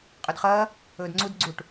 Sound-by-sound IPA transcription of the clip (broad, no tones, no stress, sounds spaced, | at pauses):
qʼ ɵ d χ ɐː | ɵː d ŋ͡ǀ u d ɡ͡ǀ u ʈ